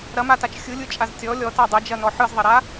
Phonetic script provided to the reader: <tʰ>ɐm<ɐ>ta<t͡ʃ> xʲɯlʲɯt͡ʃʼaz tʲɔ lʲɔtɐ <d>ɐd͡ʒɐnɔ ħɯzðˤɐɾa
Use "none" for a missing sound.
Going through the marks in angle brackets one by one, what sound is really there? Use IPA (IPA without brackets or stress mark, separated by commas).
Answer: ɾ, a, t͡ʃ, dˤ